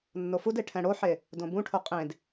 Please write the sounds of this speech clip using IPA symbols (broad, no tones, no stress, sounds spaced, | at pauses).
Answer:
nː o f u d e ʈʰ ɛ̃ ɽ o ħ e | d õ b ũ ʈʰ o qʼ ẽ d